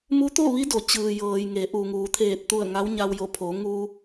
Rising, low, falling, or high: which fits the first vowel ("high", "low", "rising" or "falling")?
rising